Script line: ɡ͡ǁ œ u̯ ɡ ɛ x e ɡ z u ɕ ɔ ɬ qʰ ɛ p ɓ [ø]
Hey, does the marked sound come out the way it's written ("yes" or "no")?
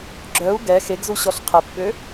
yes